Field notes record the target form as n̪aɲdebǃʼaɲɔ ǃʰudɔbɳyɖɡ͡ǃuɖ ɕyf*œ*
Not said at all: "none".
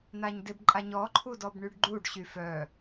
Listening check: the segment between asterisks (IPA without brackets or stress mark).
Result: œ